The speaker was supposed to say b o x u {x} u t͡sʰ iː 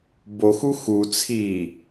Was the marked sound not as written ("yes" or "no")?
no